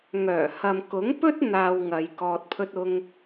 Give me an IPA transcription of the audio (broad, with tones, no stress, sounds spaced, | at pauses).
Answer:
ŋ œː˨˩ h ɐ˨ m k ʊ˨˥ ŋ p ɵ˥ t̚ n̪ aː˧ w ŋ ɐ˨˧ j k ɔː˧ t̚ pʰ ɵ˥ t̚ ʊ˥ ŋ